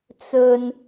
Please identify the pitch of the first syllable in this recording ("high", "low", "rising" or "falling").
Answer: low